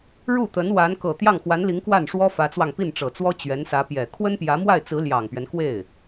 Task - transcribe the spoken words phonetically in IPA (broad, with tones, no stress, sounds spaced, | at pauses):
ɻ u˥˩ t̪ ə˧˥ n w a˧˥ n k ɤ˨˩ t̪ j ɑ˥˩ ŋ x w a˧˥ n l i˧˥ ŋ k w a˥˩ n ʂ w ɔ˥ f ä˧˥ t͡s w ɑ˧ ŋ p i˥˩ n ʈ͡ʂ ɤ˨˩ t͡s w ɔ˥ t͡ɕ ɥ ɛ˧˥ n s ä˧˥ p j ɛ˨˩ kʰ w ə˥ n p j ä˧˥ m w a˥˩ ɪ̯ t͡s ɹ̩˧˥ l j ɑ˨˩ ŋ p ɥ ɛ˦ n k w e˥˩ ɪ̯